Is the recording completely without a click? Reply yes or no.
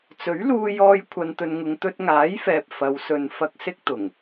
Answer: yes